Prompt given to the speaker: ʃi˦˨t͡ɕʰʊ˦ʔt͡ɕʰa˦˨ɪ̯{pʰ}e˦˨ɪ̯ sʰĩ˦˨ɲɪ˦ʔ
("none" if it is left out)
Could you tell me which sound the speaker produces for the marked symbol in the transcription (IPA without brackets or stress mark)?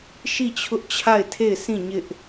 tʰ